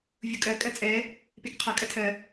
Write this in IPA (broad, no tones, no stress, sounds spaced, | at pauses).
vʲ u kʼ ɜ kʼ ɜ t͡sʼ ɛ | p e k qʰ ɐ kʼ ɜ tʰ ɜ